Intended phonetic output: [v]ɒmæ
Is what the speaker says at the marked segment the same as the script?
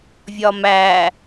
no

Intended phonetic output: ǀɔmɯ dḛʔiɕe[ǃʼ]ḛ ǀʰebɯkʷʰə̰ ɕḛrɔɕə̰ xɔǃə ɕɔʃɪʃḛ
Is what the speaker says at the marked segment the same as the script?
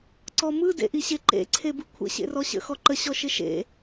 no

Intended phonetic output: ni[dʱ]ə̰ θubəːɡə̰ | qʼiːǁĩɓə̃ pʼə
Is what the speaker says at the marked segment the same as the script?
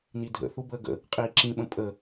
yes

